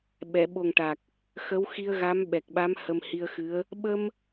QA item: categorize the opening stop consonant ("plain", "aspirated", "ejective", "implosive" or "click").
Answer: implosive